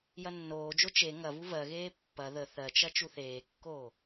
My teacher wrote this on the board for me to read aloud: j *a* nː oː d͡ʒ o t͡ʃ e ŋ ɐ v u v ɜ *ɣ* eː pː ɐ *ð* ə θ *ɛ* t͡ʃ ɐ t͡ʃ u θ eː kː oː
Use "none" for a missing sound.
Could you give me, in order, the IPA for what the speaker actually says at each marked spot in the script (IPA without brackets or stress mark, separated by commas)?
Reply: ɐ, ɣ, ð, ɜ